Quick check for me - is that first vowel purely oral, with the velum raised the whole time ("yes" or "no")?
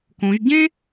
no